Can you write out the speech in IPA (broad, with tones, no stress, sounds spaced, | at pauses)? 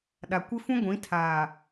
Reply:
ɗ a˨ kʷ ɪ˦ f ũ˦ ɡʷ ĩ˨˦ tʰ aː˨